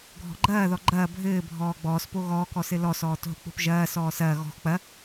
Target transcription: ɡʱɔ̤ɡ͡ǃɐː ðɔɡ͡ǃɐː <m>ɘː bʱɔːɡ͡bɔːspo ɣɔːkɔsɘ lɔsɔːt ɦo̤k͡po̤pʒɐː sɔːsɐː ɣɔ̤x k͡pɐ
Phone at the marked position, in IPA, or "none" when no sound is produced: bʱ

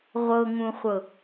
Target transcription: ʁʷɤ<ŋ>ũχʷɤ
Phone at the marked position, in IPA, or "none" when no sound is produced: ŋ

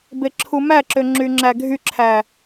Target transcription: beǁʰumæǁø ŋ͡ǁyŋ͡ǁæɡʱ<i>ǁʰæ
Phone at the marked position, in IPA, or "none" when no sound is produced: y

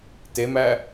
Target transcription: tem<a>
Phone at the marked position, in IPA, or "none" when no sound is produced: æ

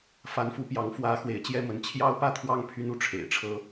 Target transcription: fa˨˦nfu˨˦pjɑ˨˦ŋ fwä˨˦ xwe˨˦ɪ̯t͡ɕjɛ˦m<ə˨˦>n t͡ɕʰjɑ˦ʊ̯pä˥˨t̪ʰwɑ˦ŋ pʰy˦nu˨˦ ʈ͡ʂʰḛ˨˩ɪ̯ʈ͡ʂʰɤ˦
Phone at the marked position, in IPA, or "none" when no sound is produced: ə˨˦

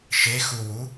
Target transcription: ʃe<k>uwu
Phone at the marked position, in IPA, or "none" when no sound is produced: x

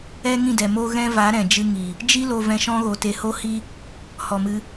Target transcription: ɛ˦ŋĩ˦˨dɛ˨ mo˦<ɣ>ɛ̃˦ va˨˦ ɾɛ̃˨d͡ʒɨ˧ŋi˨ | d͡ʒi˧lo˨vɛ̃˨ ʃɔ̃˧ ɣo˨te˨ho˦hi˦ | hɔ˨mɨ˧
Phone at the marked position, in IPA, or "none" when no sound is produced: ɣ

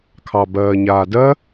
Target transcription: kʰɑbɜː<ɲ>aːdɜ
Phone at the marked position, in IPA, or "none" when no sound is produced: ɲ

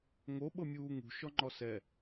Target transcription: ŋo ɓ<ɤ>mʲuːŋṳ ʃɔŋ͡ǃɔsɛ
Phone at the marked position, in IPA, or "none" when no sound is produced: ɤ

